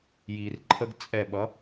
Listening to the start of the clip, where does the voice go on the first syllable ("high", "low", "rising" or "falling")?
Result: low